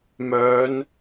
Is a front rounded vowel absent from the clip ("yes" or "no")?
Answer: no